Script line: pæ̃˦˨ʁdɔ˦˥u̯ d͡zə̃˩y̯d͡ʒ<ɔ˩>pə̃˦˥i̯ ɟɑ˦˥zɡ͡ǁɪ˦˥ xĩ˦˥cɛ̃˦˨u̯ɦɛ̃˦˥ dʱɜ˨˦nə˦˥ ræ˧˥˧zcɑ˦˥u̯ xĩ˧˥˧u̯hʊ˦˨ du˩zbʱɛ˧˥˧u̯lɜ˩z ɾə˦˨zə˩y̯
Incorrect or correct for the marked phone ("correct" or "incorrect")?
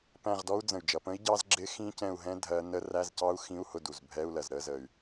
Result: incorrect